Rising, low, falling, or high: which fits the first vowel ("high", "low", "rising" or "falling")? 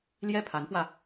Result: high